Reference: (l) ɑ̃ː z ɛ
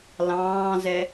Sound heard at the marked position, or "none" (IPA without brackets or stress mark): l